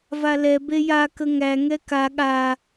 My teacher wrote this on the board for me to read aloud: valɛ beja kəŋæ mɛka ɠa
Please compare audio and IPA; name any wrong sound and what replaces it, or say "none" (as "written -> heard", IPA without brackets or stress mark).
m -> ŋ